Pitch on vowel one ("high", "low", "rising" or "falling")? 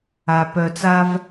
low